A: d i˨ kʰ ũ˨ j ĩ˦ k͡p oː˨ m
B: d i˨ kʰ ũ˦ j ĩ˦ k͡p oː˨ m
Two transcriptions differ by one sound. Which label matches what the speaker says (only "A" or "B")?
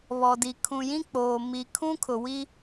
A